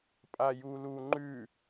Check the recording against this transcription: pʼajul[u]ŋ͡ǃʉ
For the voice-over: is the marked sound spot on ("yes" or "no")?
yes